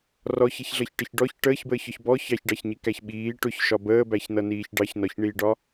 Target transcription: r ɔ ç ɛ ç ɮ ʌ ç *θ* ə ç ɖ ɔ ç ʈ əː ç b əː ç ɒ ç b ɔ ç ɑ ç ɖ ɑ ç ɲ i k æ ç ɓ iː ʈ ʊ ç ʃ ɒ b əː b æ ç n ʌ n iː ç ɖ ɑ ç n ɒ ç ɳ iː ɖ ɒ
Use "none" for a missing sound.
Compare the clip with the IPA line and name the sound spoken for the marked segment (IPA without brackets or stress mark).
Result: ʈ